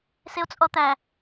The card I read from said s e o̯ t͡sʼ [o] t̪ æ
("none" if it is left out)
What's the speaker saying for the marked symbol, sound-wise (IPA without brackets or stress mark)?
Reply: ɔ